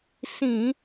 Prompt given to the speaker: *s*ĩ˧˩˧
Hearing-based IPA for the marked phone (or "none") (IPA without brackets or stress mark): s